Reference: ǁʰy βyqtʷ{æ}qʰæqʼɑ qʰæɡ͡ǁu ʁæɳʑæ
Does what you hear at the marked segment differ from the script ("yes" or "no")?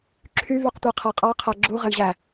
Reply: no